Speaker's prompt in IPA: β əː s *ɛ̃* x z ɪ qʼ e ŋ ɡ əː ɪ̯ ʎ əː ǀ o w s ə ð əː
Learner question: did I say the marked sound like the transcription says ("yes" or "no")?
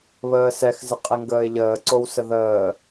no